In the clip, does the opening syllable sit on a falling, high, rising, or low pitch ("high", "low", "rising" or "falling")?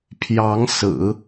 rising